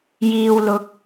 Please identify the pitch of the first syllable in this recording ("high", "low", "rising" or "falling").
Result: low